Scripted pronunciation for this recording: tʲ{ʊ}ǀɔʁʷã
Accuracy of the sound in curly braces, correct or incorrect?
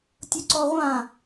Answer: correct